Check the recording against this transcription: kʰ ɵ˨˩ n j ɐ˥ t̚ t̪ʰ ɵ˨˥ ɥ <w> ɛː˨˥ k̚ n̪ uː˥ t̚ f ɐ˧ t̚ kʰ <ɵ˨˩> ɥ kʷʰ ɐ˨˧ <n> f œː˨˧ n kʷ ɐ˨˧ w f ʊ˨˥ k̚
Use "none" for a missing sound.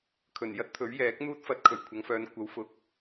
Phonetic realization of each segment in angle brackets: j, ɵ˨˩, ŋ

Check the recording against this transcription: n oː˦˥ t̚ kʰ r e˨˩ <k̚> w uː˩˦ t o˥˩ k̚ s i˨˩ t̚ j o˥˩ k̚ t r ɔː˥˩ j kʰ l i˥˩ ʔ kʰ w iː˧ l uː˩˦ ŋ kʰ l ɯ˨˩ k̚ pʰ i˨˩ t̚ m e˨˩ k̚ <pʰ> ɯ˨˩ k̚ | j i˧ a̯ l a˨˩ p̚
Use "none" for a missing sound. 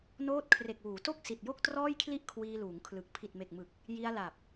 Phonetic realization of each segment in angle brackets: k̚, m

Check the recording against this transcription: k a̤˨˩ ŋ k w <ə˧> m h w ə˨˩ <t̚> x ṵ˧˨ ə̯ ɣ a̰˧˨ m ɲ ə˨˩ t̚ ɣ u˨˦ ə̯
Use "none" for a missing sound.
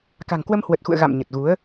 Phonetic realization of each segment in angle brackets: ə˧, t̚

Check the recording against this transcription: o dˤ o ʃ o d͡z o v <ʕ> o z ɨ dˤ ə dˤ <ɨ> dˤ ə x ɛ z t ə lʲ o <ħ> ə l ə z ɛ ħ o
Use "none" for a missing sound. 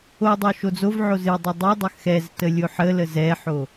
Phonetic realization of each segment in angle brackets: ʕ, ɨ, ħ

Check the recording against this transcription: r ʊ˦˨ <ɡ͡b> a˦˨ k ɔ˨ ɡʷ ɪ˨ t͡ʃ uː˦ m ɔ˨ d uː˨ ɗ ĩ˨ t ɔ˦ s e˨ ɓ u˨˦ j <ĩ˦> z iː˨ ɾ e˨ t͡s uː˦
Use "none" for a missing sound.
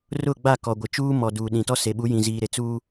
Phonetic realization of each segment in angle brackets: ɡ͡b, ĩ˨

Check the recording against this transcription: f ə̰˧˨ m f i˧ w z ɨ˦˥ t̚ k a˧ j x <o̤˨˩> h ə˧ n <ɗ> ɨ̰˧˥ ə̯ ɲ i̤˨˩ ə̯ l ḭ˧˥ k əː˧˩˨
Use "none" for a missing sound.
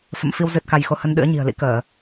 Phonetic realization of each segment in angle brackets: o˧, ɗ

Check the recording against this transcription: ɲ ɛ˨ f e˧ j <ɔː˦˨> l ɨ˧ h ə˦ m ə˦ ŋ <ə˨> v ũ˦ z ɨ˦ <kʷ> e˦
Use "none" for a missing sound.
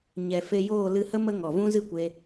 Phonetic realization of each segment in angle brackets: oː˦˨, ɔ˨, kʷ

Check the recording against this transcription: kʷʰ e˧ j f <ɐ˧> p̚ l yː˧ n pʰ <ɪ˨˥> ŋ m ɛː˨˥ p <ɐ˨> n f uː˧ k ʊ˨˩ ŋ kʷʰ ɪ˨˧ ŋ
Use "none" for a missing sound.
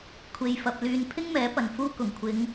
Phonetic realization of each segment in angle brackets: ɐ˧, ɪ˥, ɐ˨

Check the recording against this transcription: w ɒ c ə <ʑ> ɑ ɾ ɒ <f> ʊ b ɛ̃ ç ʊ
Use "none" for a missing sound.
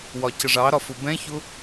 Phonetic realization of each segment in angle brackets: ʐ, f

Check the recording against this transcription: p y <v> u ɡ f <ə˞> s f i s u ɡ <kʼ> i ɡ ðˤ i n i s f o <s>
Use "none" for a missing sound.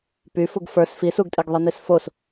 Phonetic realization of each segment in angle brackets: f, ə˞, tʼ, s

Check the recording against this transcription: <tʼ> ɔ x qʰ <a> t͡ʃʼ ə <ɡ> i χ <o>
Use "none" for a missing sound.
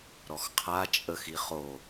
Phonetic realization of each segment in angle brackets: ɾ, a, x, o

